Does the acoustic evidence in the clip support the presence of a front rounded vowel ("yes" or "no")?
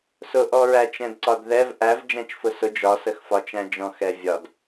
no